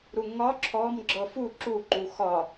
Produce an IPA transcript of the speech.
ɾ u ŋ ɒ ǁʰ ɔ m ɡ͡ǁ ɤ f u ǁ u ǃ u x ɒ

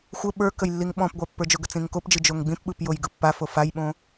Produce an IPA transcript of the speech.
xʷ ə ɓ ə˞ k ə j lː i ŋ ɓ ɔ̃ p ɡʷ a pː ə˞ d͡ʒ ʊ ɡ ə t͡s ĩ ŋ k o p d͡ʒ ɯ d͡ʒ o ŋ ɡ͡b ĩ p ɓ ɯ p j o j ɡ ɯ pː a f o f a j ɓ õ

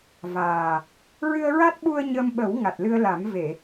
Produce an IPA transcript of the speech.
v aː˨˩ | ɹ ɨ˧ ə̯ ɹ a˦˥ t̚ ɓ u˧ ə̯ ɲ ə˧ m ɓ ə˨˩˦ w ŋ a˨˩ t̚ l ɨ˧ ə̯ l a˨˩˦ m v e˨˩˨

